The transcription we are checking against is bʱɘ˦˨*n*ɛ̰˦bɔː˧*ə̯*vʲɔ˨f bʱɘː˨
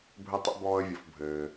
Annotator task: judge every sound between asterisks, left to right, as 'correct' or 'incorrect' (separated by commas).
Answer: incorrect, correct